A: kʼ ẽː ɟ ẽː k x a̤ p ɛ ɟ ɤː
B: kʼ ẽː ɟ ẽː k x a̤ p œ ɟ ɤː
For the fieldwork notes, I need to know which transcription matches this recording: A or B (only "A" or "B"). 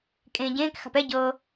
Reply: A